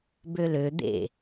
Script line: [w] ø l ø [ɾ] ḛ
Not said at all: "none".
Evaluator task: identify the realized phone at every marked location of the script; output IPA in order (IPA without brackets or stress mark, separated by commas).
b, d̪